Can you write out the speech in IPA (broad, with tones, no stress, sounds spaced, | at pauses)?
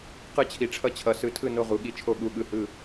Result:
q ɯ˧˩ t͡ɕʰ i˩˧ ʈ͡ʂʰ ʌ˧˩ t͡ɕʰ ʌ˩˧ s ɯ˩˧ tʰ ɯ˧˩ n o˧˩ ʁ u˩˧ ɠ i˩˧ t͡ʃʰ o˧˩ ɠ u˧˩ ɠ ɯ˧˩ h ɯ˧˩